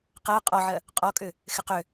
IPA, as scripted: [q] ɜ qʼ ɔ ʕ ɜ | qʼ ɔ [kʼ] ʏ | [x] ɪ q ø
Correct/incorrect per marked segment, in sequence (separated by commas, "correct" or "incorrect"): correct, correct, correct